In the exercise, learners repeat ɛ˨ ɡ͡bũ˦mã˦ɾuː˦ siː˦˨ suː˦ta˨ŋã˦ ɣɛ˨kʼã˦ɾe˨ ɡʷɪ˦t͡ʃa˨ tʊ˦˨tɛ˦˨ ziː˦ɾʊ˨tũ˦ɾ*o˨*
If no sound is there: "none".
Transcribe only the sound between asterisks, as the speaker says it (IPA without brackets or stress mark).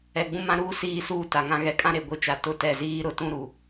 u˨